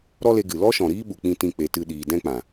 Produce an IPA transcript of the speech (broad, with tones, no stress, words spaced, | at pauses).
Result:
ɾɔ˦le˧ɡɨ˨ lɔ˦ʃɔ̃˨ɾiː˦ ɓu˨k͡pĩ˦˨tĩ˦˨ k͡pe˧tɨ˦ɗiː˧ dɛ̃˦k͡pã˨